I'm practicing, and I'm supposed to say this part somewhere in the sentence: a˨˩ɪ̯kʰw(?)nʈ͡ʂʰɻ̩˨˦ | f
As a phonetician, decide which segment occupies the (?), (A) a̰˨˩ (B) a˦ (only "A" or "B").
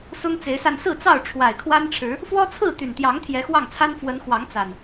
B